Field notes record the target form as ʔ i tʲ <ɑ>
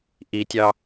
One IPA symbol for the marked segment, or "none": ɑ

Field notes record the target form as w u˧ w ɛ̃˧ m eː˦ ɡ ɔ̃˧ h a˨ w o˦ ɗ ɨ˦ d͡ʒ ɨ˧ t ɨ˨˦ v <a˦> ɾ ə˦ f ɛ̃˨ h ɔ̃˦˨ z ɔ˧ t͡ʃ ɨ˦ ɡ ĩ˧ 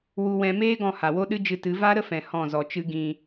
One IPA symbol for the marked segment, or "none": a˦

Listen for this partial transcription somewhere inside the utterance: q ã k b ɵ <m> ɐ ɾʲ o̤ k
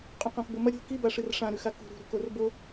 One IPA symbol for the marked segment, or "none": m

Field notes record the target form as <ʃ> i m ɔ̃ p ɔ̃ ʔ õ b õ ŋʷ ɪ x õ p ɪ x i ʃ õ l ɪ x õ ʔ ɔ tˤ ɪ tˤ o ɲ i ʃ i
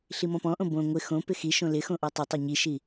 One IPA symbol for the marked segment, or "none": ɬ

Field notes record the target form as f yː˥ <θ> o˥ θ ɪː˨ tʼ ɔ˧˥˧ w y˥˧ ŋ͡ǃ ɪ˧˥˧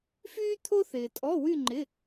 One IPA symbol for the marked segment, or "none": t̪ʰ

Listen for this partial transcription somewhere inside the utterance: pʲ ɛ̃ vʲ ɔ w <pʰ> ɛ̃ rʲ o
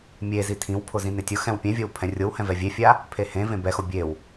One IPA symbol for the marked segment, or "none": pʰ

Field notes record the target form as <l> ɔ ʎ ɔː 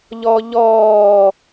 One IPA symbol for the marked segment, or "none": ʎ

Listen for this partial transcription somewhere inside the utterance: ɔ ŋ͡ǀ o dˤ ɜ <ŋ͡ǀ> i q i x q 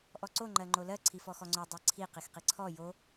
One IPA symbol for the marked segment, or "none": ǀʰ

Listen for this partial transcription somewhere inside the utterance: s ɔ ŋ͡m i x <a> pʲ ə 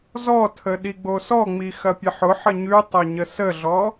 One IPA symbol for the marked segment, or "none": ɐ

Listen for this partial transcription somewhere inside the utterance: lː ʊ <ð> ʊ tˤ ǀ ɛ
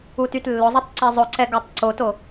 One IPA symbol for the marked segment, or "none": zˤ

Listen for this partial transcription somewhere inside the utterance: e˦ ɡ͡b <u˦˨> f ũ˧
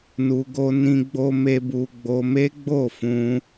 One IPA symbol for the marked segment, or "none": o˦˨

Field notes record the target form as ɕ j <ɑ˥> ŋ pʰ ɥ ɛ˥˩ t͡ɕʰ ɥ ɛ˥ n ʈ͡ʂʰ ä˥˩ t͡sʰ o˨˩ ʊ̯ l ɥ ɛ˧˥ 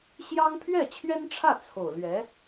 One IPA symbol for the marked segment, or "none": ɑ˥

